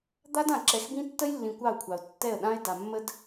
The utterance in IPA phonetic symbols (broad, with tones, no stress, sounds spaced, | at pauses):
d̪ a˦ d ã˨ ǁ ɛ˨˦ x b ĩ˦ tː ə˦ j lː ĩ˨ kʷ ɑ˦˨ ʊ̯ kʷʰ ɑ˨ ʊ̯ tː ɛ˦˨ ə̯ ɗ ã˦ ɪ̯ d a˨ mː ə˦ d